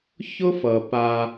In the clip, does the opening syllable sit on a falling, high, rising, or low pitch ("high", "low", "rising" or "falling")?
high